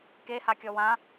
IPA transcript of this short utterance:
k e h a kʲ ɔ w ã

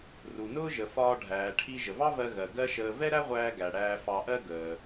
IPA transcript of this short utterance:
r u˩ n ʊː˥ ʒ ə˩ f ɒː˧ ɖʱ æː˩ ʈʰ i˧ ʒ ə˩ v ɑ˥ v ɜ˧ ɣ ɜ˩ ɡ ɜ˥ ʃ əː˧ v ɛ˥ ɾ æ˥ ʁʷ æː˧ ɡ æ˩ ɽ æː˧ f ɑ˧ ʔ ɜ˥ ɡ əː˩

